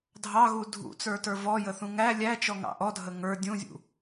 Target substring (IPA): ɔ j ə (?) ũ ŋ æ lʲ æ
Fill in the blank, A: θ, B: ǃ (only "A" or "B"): A